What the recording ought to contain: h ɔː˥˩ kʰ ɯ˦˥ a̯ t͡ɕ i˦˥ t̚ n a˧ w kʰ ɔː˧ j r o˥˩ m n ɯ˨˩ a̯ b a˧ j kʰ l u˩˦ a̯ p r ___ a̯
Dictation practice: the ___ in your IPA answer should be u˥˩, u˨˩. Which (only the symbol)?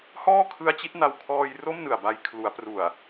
u˨˩